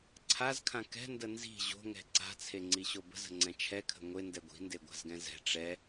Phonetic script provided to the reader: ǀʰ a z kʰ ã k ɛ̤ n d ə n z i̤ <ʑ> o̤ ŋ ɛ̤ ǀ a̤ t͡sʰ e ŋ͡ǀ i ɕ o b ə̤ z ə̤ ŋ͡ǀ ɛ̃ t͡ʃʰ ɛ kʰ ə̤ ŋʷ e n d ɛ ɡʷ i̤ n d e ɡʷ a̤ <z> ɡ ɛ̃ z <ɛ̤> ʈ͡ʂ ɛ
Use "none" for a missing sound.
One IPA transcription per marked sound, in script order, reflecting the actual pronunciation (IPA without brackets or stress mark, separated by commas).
ʑ, z, ɛ̤